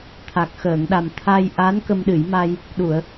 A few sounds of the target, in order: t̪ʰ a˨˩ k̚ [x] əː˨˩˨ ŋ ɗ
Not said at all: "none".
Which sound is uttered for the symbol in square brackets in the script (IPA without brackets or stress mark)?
x